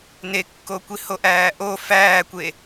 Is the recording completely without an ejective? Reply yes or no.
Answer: yes